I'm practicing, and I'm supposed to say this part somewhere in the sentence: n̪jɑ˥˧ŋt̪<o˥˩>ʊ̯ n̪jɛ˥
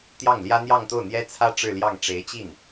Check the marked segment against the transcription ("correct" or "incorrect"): correct